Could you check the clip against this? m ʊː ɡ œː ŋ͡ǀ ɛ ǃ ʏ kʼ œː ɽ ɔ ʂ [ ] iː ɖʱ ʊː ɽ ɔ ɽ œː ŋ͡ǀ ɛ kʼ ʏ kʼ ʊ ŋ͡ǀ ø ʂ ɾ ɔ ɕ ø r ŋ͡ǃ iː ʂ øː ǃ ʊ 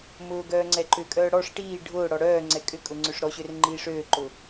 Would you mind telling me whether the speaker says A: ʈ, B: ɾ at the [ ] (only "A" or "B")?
A